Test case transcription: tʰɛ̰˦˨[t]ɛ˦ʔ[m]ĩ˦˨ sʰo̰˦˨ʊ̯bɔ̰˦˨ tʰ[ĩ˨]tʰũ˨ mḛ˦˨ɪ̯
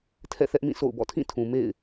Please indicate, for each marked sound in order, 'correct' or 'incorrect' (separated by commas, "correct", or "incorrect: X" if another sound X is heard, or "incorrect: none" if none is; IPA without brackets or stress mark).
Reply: incorrect: θ, correct, incorrect: ĩ˦˨